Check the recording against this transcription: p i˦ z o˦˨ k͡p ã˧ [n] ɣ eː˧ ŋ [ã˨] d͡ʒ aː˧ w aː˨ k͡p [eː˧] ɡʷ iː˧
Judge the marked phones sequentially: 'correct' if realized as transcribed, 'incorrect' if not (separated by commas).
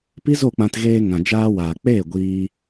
incorrect, correct, incorrect